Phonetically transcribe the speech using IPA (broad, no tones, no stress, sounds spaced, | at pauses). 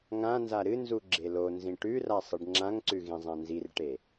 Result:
ŋ ã n z a ɾ ɨ n z u ɡ͡ǁ e l o n z ĩ ʈ ʉ r a sˤ ɨ ɖ ŋ͡ǁ ã ŋ ǀ ʉ ɣ ĩ zˤ ã n z i r ʈ e